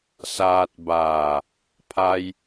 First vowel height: low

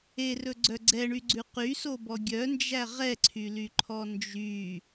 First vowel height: mid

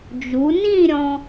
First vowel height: high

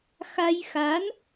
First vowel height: low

